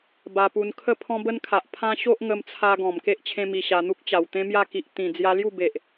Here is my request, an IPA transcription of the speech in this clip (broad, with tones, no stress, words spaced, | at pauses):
ba˧pu˧n kʰə˥˧pʰɔ̃˦bə˦nkʰa˨ʔ pʰã˦ ɕo˦ʔŋə˧mt͡sʰa˧ ɡɔ̃˨˩mke˦ʔ t͡ɕʰẽ˦mi˧ɕa˧ n̪u˦k̚t͡ɕa˨˩w t̪ẽ˦mja˥˧ki˨ʔ t̪ĩ˨˩ d͡zja˧lju˥˧be˨ʔ